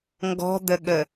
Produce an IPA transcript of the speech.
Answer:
ŋɡɔ̤d̪əɠə

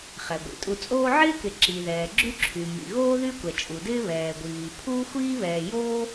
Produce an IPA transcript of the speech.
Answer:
χɛ˩ɡʷḭ˩ tʼu˨t͡sʼoː˦ʕɪː˥kɪ˨ ǁi˩ðɛː˩ ɡ͡ǁy˦ǁʰy˩ mḭ˩ɣoː˦ ðy˦kʷɛ˩t͡ʃʼu˩dɪː˦ βɛː˩ɡʷiː˩ pʰuː˥xʷiː˥βɛː˨ joː˦

